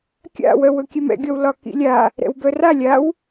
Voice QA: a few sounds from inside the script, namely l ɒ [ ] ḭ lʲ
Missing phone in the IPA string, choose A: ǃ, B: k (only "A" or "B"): B